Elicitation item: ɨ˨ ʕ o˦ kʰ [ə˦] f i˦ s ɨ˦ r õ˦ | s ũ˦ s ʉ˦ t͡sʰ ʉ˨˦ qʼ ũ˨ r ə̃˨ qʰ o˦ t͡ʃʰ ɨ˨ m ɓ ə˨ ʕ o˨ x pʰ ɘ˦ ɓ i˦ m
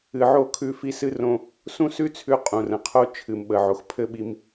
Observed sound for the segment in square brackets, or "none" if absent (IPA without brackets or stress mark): ʉ˦